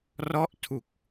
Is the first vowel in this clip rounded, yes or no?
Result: yes